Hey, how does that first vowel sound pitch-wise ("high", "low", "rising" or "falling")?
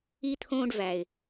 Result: high